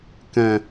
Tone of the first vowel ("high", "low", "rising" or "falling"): low